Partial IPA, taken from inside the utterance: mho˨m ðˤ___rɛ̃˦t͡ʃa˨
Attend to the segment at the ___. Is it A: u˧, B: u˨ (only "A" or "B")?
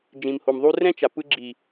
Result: A